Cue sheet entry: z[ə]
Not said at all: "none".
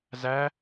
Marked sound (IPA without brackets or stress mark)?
æ